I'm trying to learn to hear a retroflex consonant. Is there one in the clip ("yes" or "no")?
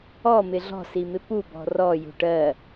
yes